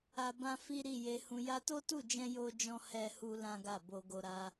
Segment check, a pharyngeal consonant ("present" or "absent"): absent